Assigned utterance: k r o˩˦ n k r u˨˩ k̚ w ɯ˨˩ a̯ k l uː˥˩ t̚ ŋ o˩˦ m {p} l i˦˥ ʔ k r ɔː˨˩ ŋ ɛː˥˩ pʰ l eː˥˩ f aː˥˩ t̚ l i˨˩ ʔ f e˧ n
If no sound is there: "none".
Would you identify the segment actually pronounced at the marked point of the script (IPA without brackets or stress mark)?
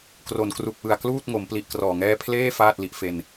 p